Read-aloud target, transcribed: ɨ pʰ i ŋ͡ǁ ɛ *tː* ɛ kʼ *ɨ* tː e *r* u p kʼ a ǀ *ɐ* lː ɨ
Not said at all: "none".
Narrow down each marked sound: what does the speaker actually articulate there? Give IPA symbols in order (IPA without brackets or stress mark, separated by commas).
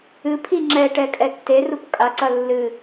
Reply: ʈ, ɛ, r, ɐ